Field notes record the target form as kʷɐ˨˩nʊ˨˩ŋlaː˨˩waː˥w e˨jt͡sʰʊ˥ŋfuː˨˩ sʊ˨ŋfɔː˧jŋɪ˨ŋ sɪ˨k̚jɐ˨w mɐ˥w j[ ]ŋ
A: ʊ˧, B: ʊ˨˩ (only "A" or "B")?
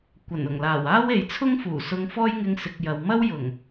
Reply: B